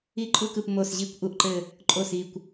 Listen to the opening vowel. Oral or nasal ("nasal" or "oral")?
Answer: oral